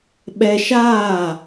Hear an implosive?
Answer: yes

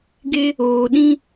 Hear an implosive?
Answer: yes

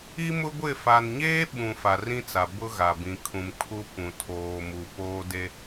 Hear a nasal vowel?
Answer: yes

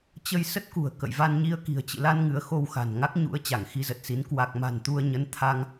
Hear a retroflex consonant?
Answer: no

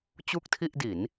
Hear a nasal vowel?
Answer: no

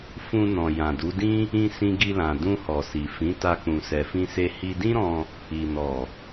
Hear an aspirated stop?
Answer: no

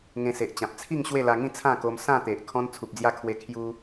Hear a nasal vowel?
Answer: yes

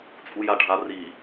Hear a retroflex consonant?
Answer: yes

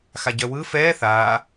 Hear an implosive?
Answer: no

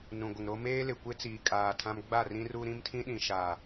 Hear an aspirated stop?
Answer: yes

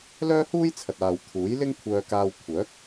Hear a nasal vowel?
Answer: no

